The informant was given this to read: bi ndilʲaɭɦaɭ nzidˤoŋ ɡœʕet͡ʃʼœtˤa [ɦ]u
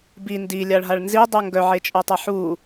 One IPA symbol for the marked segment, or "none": ħ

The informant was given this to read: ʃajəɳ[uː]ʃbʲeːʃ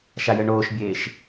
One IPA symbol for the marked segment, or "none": oː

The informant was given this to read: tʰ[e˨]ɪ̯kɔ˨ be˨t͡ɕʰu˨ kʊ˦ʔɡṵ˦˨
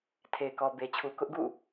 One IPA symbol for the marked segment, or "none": e˨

